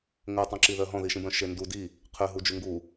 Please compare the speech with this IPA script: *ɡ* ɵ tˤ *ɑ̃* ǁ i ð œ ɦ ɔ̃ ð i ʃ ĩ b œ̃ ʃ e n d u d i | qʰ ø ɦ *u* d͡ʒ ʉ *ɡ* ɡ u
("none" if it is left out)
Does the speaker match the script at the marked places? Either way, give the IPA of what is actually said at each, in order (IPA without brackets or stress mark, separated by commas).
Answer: ŋ, ɑ̃, u, ŋ